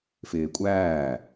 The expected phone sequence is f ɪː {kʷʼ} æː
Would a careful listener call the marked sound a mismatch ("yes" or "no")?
no